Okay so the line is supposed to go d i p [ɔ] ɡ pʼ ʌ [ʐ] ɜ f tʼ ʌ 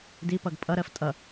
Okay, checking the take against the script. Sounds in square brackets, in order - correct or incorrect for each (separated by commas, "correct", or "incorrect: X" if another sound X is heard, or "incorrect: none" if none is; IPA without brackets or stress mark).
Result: incorrect: ʌ, incorrect: ɾ